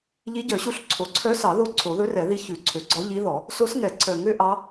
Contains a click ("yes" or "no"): yes